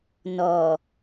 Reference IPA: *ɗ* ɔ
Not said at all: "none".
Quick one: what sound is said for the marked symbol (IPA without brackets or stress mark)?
n